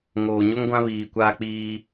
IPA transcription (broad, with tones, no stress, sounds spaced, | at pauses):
ŋ oː˨ ɲ o˦ ŋ ɡʷ ã˦ β iː˨ kʷ aː˦ k͡p iː˦